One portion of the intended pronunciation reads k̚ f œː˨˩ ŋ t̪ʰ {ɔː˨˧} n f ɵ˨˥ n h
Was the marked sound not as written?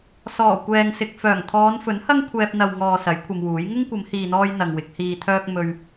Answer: no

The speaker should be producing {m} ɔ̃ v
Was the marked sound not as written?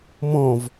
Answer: no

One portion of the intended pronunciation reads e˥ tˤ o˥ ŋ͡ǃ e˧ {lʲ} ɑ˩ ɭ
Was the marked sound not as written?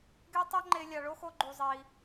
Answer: no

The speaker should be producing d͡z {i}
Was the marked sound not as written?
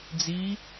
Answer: no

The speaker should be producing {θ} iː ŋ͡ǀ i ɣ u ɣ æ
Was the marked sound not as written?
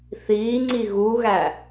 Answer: no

